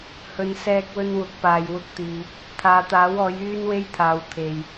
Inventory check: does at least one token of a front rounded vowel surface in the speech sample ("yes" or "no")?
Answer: yes